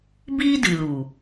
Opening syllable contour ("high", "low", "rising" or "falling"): high